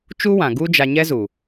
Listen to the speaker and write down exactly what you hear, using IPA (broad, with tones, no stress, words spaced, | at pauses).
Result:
t͡ʃu˦wã˨ɡu˦d͡ʒa˧ ɲɛ˦zu˨